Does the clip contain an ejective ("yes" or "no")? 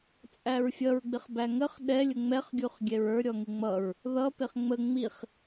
yes